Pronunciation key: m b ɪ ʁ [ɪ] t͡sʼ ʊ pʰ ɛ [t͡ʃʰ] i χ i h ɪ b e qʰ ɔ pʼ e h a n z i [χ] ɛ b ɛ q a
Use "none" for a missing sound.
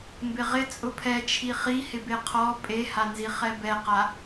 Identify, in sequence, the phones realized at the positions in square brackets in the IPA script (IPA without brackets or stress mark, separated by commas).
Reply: ɪ, t͡ʃʰ, χ